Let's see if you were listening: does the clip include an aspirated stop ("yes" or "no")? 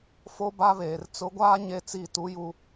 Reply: no